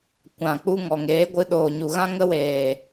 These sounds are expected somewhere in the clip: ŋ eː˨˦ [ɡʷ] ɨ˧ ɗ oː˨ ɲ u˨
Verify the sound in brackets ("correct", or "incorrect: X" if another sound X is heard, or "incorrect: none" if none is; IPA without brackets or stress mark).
correct